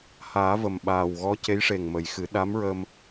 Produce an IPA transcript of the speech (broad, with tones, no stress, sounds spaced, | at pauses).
h aː˨˩˦ v ə˨˩ m ɓ aː˨˩ w ɣ ɔ˧˥ c e˧˥ j ʂ e˨˩ ŋ m ə˨˩˨ j x ɨ˨˩˦ ɗ a˧˥ m ɹ ə˧ m